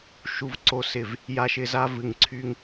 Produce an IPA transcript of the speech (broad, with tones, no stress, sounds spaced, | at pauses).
ʃ u˨ v ǀ o˨ s ɪ˨ v | j a˧ ʃ ɪ˧ z a˧ v ɨ˨ ŋ ǀʰ y˧ ŋ